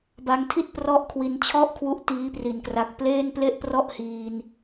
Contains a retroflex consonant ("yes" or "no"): no